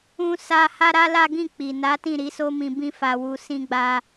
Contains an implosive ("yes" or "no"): no